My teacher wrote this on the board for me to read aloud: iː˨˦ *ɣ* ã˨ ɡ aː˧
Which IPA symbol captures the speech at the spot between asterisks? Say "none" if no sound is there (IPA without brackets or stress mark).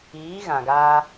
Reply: ɣ